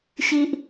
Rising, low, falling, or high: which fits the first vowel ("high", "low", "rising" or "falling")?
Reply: high